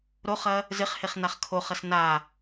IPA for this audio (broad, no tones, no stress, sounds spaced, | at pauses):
ɾ o χ ɐ | z ɪ χ h e χ n a χ kʰ o χ ɐ s n a